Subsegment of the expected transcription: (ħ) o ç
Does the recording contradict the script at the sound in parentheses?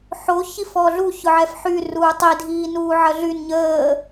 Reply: no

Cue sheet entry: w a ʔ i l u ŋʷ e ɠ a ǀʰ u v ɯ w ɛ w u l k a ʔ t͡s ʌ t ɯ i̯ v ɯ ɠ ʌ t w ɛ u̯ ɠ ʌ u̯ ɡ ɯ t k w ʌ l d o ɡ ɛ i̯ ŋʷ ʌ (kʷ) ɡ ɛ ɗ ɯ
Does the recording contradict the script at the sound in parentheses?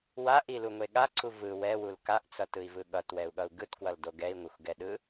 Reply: yes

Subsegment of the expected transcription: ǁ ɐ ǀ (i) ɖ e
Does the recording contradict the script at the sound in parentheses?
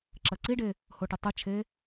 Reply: no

